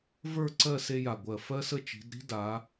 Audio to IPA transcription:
v ə˞˥˧ ǀ ɜ˥˧ s e˥ j a˧˩ ɡʷ ɜ˧˩ f ɜ˥ s ə˥˧ t͡ʃ i̤˩˧ d ɾ i̤˥ d a˩˧

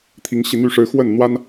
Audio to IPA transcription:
t̪ʰ i˧˥ ŋ ɕ i˧ n̪ y˥˩ ʂ ɻ̩˧˥ x w ə˥˩ n n̪ w a˥ n

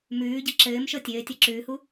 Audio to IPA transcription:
m ʉː ɟ ɘ ǁ ɘː m ʃ ɤ tʲ ɘː tʲ ɤ ǁ ʉ h u

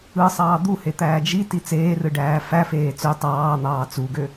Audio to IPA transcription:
ɯ sˤ ɑː d̪ u h e t̪ æː d͡ʒ i t i t͡s eː r ɯ ɖ æː f æ f eː t͡s ø tˤ ɑː n̪ ɑː t͡s u ɡ ø

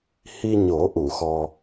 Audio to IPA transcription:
h i˧ ɲ o˨˩˦ ʔ u˨˩˨ x ɔ˧

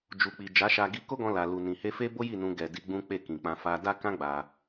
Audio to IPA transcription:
d͡ʒ u˨ k͡p i˨ d͡ʒ a˨˦ ʃ a˧ ɡ i˧ k o˦ ɡ ɔ̃˧ l a˨ l u˨ n ĩ˨ h e˧ f e˦ b o˦ j i˦˨ n ũ˧ ɡ ɛ˨ d i˧ ɡ͡b ũ˦ k͡p e˦˨ k ĩ˨ k͡p ã˧ f a˧ d a˦ k ã˦ ɡ͡b a˧

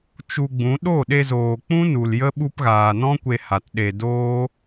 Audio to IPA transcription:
t͡ʃ u˧ ɡ͡b ũ˨˦ ɗ o˦˨ ɗ e˧ z oː˨ k͡p ũ˦ n u˨ l j ə˦ ɓ u˧ p ɣ aː˨ n ɔ̃˦ kʷ e˧ h a˨ t ɗ e˨ d oː˦

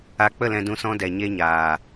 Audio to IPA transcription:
a˧ k͡p ə˦˨ l ɛ̃˧ d ũ˧ s ɔ̃˦ d ɛ˨ ɲ e˧ ɲ aː˨

